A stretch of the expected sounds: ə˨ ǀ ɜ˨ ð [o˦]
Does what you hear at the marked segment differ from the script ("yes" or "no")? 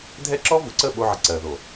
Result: yes